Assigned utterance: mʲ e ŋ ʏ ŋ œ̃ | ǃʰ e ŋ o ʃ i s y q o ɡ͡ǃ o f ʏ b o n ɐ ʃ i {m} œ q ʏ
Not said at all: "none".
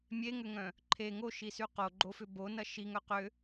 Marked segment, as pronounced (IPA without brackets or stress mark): ŋ